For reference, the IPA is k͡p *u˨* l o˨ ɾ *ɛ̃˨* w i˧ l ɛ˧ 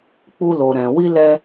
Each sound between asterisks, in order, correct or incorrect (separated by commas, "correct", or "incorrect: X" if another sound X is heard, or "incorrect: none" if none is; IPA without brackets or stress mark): incorrect: u˧, correct